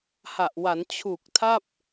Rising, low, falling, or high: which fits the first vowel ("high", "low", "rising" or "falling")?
low